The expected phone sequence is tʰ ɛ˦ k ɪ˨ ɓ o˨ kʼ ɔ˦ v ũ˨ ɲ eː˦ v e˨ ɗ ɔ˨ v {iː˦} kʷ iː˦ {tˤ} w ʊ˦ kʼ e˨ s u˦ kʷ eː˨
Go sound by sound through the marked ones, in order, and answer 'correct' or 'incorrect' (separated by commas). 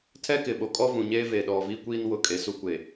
correct, incorrect